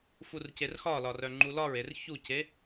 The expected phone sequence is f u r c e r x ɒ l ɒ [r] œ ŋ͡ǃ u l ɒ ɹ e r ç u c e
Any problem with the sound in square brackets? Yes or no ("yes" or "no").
no